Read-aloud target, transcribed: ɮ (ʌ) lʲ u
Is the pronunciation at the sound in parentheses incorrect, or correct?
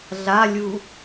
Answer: incorrect: a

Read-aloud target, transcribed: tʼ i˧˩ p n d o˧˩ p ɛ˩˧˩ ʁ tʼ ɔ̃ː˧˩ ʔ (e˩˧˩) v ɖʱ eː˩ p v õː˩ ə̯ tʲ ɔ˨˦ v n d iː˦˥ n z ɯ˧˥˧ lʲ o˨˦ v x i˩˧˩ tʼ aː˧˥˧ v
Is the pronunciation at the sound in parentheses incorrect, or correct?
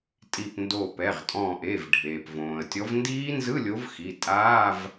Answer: correct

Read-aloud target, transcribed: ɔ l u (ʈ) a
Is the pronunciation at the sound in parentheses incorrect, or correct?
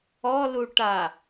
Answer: correct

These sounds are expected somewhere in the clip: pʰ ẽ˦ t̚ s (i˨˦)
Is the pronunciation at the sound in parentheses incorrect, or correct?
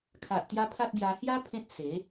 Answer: incorrect: e˨˦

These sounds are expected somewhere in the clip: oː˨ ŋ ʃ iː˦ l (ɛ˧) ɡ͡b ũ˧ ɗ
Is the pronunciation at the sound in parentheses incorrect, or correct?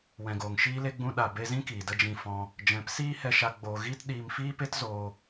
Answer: incorrect: e˧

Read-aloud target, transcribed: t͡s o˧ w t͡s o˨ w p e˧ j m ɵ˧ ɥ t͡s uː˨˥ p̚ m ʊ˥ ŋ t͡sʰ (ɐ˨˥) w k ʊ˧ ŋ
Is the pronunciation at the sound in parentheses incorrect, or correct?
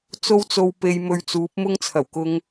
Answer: incorrect: ɐ˨˩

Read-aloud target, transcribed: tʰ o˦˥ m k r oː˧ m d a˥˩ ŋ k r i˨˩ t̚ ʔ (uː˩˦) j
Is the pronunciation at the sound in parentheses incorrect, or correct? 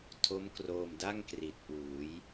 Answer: correct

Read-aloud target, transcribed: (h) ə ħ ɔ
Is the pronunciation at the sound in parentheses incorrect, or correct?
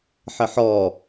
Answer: incorrect: ħ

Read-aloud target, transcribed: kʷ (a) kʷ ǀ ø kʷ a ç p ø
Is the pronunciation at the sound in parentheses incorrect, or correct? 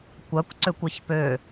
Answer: correct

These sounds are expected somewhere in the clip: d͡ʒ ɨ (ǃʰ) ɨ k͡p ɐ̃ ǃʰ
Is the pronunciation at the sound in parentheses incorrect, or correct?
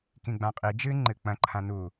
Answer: incorrect: ŋ͡ǃ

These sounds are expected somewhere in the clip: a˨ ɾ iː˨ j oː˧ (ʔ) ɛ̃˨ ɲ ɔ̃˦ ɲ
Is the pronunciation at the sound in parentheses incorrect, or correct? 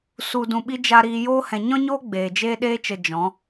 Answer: incorrect: h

